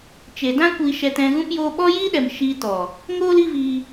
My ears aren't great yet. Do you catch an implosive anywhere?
yes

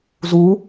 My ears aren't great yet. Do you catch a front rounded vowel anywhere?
no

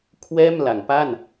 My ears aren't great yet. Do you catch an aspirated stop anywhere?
yes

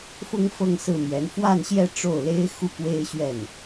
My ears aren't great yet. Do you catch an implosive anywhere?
no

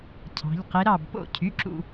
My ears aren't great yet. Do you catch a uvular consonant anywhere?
yes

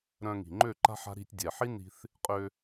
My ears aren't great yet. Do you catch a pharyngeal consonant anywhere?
yes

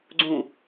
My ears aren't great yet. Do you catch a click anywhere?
yes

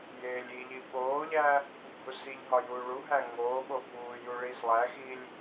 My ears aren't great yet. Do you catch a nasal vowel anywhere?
no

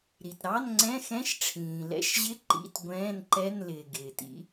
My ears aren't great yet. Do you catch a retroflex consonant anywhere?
yes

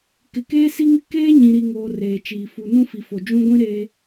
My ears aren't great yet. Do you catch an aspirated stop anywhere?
no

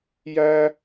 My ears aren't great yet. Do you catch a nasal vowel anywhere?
no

